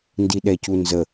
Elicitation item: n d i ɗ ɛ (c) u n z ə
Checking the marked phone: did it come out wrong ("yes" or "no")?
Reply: no